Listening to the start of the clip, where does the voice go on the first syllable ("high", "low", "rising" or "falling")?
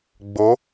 rising